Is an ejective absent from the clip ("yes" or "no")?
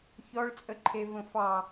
no